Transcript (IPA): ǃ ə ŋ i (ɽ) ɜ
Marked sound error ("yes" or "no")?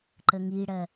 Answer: no